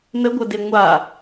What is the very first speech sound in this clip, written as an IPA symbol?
n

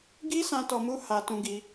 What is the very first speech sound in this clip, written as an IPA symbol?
ɡ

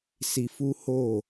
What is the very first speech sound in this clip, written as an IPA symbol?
s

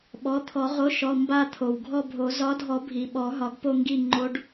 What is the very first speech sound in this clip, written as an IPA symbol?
ɓ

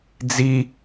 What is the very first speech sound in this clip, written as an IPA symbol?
d͡z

